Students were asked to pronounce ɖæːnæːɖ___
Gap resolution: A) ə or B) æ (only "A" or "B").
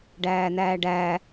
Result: B